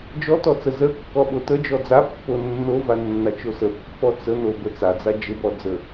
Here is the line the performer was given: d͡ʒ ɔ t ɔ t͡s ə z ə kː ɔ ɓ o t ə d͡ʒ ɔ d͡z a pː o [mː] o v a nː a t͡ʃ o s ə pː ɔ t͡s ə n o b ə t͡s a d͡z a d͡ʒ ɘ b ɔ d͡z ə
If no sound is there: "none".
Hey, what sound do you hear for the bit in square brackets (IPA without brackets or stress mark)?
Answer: nː